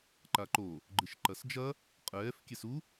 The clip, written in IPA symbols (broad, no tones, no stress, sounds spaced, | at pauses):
ǃ a ǃ o | ɡ͡ǃ ɨ ʃ ǃ ɐ s d͡ʒ ɐ | qʼ ɛː f kʲ ɛ s u